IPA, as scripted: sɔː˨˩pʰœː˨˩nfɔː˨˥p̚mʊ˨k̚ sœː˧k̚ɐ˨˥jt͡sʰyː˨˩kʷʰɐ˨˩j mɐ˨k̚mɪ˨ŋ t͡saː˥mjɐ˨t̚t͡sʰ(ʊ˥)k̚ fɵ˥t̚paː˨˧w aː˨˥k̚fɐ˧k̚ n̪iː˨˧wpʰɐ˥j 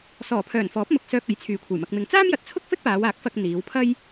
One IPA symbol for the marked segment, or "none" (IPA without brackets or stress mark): ʊ˥